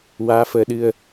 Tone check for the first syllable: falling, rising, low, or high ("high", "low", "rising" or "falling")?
rising